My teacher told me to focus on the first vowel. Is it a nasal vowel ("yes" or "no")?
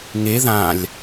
no